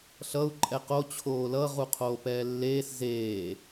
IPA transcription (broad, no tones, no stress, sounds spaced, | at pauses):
ɬ ʌ u̯ ǃʼ ɛ q o t͡ɕʰ oː l ʌ ʁ u qʰ oː p ɛː lː eː s z eː